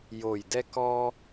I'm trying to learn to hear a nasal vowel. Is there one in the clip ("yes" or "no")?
no